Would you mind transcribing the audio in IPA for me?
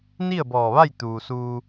n i˥˨ ə̯ b ɔː˧˩ ʋ a˥˨ j t̪ uː˩ s uː˧

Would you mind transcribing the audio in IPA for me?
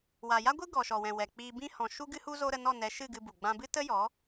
w a˨ j a˦ ɡʷ ɨ˦ ɡ ɔ˨ ʃ ɔ˨ w ɛ̃˨ w ɛ˨ k͡p iː˧ b ĩ˧ h ɔ̃˨ ʃ u˦ ɡ ɨ˦ h u˦ z o˦ ɾ ə˧ n ɔ˦˨ n ɛ˨˦ ʃ ɨ˦˨ ɡ ɨ˧ b u˨ ɡ͡b ã˧ b ɨ˦ t ə˦ j ɔ˨˦

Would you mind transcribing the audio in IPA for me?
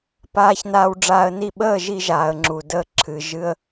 p aː˧ ç n aː˧ w ɖ͡ʐ aː˧ ə̯ n i˥˩ ɓ əː˥˩ ʒ i˧ ʒ aː˩ ə̯ ŋ͡ǁ u˩ d əː˧ ǁʰ ɨ˩ ʒ ɨ˧ ə̯

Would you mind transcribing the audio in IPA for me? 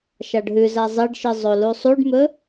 ʃ a ɖ ɦ ʉ z a zˤ e ɖ ʃ ɨ zˤ o l u sˤ u ɖ m ɵ

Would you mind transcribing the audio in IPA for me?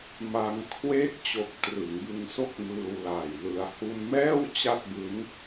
m a˧ ŋ kʰ w eː˦˥ k̚ t͡ɕ o˨˩ k̚ t r ɯ˩˦ ŋ b ɯ˧ ŋ s o˥˩ k̚ m ɯː˧ w l aː˨˩ j l ɯ˧ a̯ h u˧ n m ɛː˥˩ w t͡ɕ a˥˩ t̚ b ɯ˦˥ ŋ

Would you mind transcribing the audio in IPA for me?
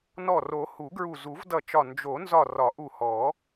n ɔ˧˩ r o˨˩˦ h u˨˩˦ ɡ ɹ u˧˩ z u˨˩˦ v d ʌ˧˩ t͡ʃ ɒ˧˩ n d͡ʒ o˨˩˦ n z ɒ˧˩ r ɒ˨˩˦ ʔ u˧˩ h ɔ˨˩˦

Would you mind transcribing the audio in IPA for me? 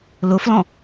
l ʊ f l ɔ̃

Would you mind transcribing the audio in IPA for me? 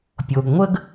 pʲ o˩ ɡ ŋʷ ə˥ ɡ

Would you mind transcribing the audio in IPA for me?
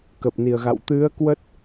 k ə˨˩ p̚ n i˨˩ ə̯ ɣ a̰˧˨ w t̪ ɨ˨˦ ə̯ k w ə˦˥ t̚

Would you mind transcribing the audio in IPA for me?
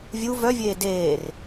vʲ u v œ vʲ eː d eː r

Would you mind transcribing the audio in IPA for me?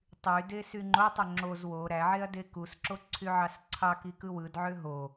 tˤ y d e s y ŋ͡ǃ o tˤ o ŋ͡ǁ o z w o ɾ æ ʕ e ɐ̯ d e k u s ǁ o ǀʰ y ʕ ɑ s ǀʰ ɑ k i k ɯ w ɯ d ʕ ø ɦ o

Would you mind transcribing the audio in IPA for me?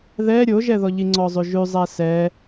ð ɛ ɾʲ o ʒ ɛ ð ɔ ʎ i ŋ͡ǀ ɔ zˤ ʉ ʒ ʉ zˤ æ s ɛ

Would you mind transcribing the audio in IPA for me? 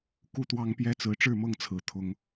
k u˦ t̪ w ɑ˦ ŋ p j ɛ˦ t͡s ɹ̩˨˦ ʈ͡ʂ ɻ̩˥˨ m ɤ˥˨ ŋ t͡sʰ ɹ̩˨˦ t̪ʰ ʊ˨˦ ŋ

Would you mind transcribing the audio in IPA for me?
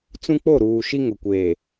t͡s ũ˦ k͡p o˦˨ ɾ uː˨ ʃ i˦ ŋ ʊ˨ kʷ eː˨

